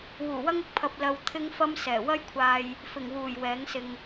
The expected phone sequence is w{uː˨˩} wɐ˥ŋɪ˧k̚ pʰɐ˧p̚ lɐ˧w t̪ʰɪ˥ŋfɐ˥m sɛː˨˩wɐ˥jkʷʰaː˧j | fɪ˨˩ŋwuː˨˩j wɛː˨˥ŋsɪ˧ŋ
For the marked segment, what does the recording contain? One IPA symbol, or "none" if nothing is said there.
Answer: uː˨˩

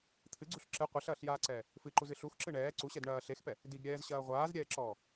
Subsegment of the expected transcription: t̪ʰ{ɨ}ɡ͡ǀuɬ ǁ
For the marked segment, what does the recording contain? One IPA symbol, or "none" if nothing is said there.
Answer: ɨ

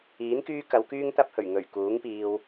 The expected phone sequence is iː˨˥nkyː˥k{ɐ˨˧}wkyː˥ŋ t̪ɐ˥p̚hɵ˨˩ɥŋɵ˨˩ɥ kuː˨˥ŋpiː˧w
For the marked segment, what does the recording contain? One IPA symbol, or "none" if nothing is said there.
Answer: ɐ˨˧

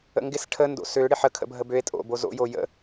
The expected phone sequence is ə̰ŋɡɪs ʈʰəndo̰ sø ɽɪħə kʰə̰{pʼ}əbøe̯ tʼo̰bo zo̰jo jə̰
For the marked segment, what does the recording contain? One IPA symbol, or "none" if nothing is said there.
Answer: bʱ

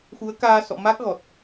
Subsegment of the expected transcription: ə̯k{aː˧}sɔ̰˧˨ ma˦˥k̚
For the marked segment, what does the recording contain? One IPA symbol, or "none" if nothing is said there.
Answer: aː˧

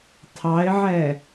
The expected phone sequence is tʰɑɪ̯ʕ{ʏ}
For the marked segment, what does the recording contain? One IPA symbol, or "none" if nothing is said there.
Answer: ɛ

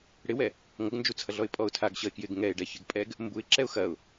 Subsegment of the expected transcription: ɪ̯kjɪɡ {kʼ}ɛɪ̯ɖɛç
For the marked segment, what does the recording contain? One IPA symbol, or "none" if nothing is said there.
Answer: ŋ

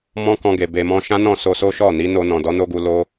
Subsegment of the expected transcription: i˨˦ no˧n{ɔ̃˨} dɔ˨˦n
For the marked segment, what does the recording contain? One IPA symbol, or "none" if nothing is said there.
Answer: ɔ̃˨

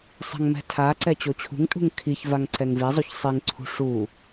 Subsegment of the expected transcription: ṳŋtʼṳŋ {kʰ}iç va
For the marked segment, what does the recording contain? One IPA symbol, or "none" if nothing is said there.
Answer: kʰ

